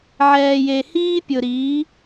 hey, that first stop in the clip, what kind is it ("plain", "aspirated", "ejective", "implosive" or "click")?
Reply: plain